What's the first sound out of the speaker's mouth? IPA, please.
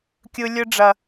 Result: kʲ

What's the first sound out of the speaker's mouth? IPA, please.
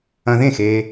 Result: ɐ̃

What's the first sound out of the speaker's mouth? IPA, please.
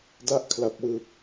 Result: d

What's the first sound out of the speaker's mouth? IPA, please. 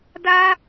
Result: d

